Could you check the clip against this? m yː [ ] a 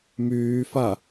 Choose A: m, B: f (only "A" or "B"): B